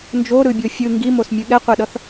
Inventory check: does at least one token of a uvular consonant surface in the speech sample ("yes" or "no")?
yes